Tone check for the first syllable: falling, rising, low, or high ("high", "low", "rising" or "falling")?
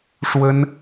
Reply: high